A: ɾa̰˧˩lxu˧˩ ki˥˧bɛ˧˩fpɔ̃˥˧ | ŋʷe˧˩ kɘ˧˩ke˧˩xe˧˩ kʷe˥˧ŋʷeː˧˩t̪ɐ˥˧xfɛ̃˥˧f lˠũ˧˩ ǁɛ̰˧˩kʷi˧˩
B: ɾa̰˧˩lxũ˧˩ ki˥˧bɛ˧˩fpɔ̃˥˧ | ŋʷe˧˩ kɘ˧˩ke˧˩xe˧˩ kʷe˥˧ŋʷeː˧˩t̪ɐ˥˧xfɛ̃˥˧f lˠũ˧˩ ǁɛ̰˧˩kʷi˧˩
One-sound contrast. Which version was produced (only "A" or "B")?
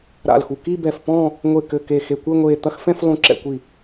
A